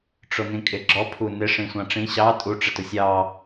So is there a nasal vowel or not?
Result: yes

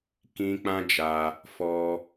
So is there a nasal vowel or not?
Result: yes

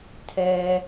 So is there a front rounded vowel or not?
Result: no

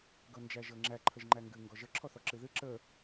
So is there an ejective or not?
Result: no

